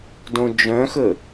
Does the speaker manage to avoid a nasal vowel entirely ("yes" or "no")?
no